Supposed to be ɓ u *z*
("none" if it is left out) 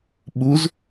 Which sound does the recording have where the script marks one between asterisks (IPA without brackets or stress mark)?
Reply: z